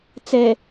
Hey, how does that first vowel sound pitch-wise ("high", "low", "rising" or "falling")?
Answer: low